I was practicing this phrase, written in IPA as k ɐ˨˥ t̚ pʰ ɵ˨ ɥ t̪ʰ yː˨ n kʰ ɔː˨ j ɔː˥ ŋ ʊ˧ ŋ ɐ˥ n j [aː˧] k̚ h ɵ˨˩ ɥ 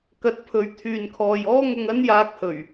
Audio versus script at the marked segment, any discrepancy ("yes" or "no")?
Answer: no